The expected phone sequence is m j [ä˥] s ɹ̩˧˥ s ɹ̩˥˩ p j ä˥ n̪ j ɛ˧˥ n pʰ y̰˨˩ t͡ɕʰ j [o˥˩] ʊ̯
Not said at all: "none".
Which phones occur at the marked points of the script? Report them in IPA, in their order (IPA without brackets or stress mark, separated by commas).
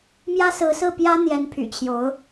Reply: ä˥, o˧˥